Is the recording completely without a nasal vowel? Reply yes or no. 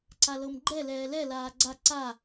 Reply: yes